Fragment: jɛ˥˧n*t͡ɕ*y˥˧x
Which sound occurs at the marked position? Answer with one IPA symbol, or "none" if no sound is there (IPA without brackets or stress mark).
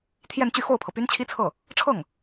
t͡ɕ